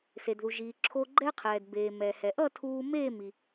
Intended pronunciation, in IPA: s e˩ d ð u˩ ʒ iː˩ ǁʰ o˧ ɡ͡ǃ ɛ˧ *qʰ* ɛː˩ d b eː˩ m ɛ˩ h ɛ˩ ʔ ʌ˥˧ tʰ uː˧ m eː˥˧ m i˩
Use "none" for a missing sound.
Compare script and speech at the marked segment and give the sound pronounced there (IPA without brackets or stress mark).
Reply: qʰ